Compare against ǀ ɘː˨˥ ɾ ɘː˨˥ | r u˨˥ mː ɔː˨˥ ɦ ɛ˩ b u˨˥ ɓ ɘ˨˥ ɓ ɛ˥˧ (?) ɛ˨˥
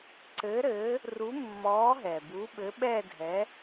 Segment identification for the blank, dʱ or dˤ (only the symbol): dʱ